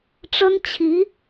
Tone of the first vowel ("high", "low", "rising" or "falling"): high